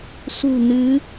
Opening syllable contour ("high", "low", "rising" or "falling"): low